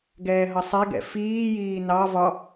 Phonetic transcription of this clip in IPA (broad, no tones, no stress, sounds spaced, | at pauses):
ɡ ɛː ɦ ʌ sˤ ɛ ɡ ɛ̰ f iː j iː n ɑ v ɒ